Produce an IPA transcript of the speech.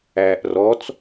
æː ʔ r ɔ t͡s

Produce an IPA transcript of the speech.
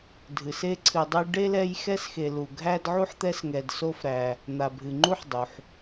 dʱ ɨ˩ s e˦ ǀʰ ɨ˨ dˤ ɘ˦ j ɖ e˥ l ɛ˦ j x ɛ˦ s x e˨ l u˨ ɡʱ æ˥ d ʕ u˥ ħ t̪ ɛ˦ s ŋ ɛ˨ d s o˦ f ɾ æ˨ | n̪ a˨ bʱ ɨ˨ ŋ͡ǃ u˥ ħ dˤ u˩ ħ

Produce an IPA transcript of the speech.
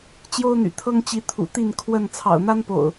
t͡ɕ j o˦ ʊ̯ n̪ y̰˨˩ t̪ʰ ɤ˦ ŋ t͡ɕ i˨˦ t̪ʰ ṵ˨˩ t̪ i˥˨ n kʰ w ə˥˨ n t͡sʰ ɑ̰˨˩ ʊ̯ n̪ a˦ n p o̰˨˩ ʊ̯

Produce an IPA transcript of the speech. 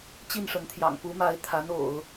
t͡ɕ i˥˩ n ʂ ə˧˥ n t̪ʰ j ɑ̰˨˩ ŋ p u˧˥ m a˧˥ ɪ̯ t̪ʰ a˧˥ n o̰˨˩˦ ʊ̯

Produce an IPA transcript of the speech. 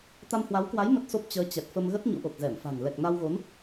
t̪ a˧ m h w a˨˦ w k w a˨˦ j m ə˦˥ t̚ s o˦˥ p̚ t͡ɕ əː˨˦ t͡ɕ ɛ˨˩ t̚ f ə˧ m ɣ ə˦˥ t̚ ɲ ṵ˧˥ ʔ o˨˩ k̚ z ɛ˧˩ m f a̤˨˩ ŋ l ɛ˨˩ k̚ n a˧ w ɣ o˨˦ n

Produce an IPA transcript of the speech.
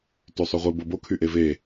t y sˤ y ʁʷ e b o b o kʰ y ʔ e v e

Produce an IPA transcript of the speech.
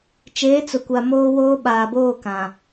t͡ʃ eː˨˦ t͡s ʊ˨ kʷ a˨ m oː˦ w oː˦ ɓ aː˨ b oː˦˨ k ã˨

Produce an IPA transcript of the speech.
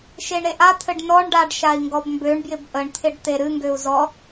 ʃ e ɳ ɾ e ʔ a t̪ʰ ɘ ɖ n ɔ ɳ ɖ a ɖ ʃ a i̯ ŋ ɡ ɔ b m b ø ɳ b j ɪ b ʔ ə ɳ t̪ʰ ɪ ɖ t̪ e ɾ ɨ ŋ ɡ ø u̯ z ɔ

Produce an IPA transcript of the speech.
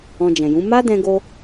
ɔ̃˧ d͡ʒ ɛ̃˨ j ũ˨˦ m a˦ d ɛ̃˧ ɡ o˧

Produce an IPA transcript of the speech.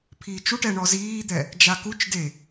pʰ iː t͡ʃ u ʈ ɛ ɳ ɔ z iː d̪ ɛ | d͡ʒ a k u t͡ʃ d e

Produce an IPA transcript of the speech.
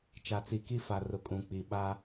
t͡ʃ a˨ t͡s i˨ k i˦ f a˨ r ʊ˨ kʼ ũ˨ k͡p i˨ ɓ a˦

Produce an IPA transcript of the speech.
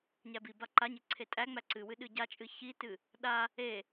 ɲ æ b i b a ǃ a ɲ e ǀʰ e tʼ æ ŋ͡m æ ǀ ɨ w ɨ ɗ ɨ ɟ a t͡ʃʼ ɨ ç i t ɨ | ɗ a | e

